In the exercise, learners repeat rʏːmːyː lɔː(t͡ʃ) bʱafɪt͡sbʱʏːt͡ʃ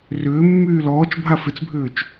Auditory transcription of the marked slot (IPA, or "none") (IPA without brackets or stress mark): t͡ʃ